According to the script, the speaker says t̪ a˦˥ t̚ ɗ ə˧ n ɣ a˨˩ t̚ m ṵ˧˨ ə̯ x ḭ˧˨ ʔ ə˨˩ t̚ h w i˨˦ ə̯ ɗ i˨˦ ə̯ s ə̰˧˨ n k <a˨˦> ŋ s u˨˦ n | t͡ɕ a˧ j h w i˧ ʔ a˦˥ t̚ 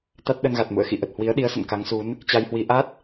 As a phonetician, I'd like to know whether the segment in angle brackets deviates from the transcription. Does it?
no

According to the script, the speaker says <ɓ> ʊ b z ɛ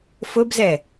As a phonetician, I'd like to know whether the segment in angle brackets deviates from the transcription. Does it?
yes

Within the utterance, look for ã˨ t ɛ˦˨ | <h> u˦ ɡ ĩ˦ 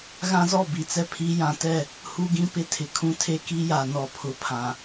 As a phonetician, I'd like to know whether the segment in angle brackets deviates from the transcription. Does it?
no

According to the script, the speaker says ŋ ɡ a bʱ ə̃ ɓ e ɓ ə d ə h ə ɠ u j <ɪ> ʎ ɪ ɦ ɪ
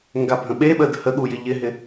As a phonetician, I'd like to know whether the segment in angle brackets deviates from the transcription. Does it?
no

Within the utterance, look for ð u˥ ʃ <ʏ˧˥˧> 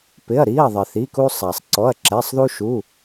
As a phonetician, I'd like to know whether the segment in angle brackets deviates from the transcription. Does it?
yes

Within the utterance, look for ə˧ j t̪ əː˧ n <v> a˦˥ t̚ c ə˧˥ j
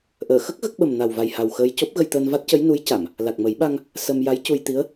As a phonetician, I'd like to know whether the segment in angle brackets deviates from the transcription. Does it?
no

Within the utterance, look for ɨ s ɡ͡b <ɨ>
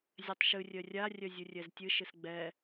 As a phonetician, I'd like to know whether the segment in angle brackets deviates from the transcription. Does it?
yes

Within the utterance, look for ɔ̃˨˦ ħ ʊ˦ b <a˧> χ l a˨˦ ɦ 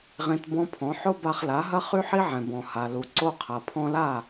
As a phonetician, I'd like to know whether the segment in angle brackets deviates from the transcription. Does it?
no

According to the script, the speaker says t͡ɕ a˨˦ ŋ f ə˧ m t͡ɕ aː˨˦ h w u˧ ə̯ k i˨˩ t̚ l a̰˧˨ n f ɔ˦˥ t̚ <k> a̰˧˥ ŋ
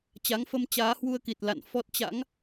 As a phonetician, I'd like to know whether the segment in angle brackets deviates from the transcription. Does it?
yes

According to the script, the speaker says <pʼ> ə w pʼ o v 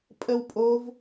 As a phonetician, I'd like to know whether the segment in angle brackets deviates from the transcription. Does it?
no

